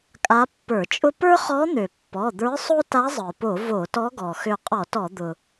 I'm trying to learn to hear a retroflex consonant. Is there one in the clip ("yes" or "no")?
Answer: no